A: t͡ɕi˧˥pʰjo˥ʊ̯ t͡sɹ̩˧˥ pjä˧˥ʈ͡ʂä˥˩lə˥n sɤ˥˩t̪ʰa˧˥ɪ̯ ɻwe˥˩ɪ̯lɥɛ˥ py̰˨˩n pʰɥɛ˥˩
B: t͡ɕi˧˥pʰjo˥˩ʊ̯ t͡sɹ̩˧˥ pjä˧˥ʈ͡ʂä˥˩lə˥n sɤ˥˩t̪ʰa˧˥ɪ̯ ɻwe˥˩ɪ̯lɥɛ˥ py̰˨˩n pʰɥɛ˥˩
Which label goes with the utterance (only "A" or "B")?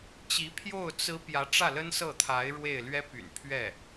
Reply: B